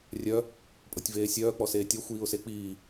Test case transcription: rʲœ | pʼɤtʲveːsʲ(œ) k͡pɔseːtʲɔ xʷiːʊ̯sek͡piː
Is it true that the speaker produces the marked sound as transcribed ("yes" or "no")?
no